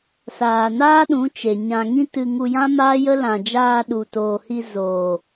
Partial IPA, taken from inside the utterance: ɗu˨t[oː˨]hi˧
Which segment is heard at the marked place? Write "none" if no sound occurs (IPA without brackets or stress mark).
oː˨